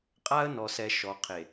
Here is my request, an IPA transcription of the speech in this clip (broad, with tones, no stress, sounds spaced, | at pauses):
qʼ a˦ ə̯ n ɔ˨ s ɛ˨ ʃ ɔ˨ qʰ e˨